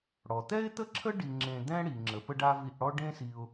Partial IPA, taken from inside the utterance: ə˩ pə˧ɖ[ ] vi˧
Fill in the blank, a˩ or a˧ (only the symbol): a˧